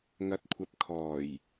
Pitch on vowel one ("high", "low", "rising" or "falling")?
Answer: rising